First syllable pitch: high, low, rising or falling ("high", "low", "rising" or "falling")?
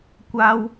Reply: high